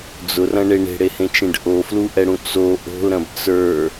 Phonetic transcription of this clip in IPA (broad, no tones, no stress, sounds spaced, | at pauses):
d͡z ʊ r ɐ̃ ɳ e ɳ e̤ ɽ e h ẽ t͡ʃ ẽ ɖ ʔ o f l u ʔ ɛ ɽ ũ t͡s o ʔ o̤ l ɾ ɐ̃ b t͡s ə˞